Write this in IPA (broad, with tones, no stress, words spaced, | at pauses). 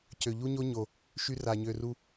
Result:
cø˨ʎu˦ɲo˦ ɲo˨ | ʃy˧ra˨ɲø˨ ru˧